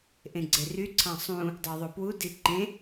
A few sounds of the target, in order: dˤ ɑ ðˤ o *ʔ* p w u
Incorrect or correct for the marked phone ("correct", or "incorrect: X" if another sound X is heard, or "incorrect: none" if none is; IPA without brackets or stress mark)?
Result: incorrect: none